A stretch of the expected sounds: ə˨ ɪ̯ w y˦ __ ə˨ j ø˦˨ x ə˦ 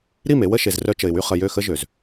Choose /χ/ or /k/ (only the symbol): χ